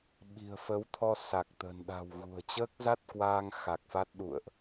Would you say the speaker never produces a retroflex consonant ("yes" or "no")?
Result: yes